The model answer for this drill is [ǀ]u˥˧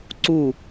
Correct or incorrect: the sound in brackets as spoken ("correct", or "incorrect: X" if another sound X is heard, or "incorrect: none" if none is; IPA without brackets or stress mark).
correct